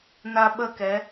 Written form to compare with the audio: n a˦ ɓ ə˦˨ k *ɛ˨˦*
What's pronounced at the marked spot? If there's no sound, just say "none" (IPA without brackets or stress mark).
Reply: ɛ˨˦